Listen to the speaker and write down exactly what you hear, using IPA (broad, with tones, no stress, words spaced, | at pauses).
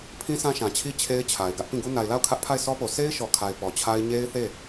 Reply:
pʰĩ˦sʰã˦ʃã˨t͡ɕʰi˦ t͡ɕʰe˦ɪ̯t͡ɕʰa˨ɪ̯ɡä˦ʔ pĩ˦˨ɡu˦ na˨ɪ̯la˦˨ʊ̯ kʰä˦ʔpʰa˦˨ɪ̯sɔ˦po˨ se˦ɪ̯ʃɔ˨kʰa˨ɪ̯ pɔ˨t͡ɕʰa˦ɪ̯ ɲe˦ɪ̯θe˦˨